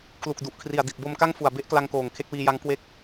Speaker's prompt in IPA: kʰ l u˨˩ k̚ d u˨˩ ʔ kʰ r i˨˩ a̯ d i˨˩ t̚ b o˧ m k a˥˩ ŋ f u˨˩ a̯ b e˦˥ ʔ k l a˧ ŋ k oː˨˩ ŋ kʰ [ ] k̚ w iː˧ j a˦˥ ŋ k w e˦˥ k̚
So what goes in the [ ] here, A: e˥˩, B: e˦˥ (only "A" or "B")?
B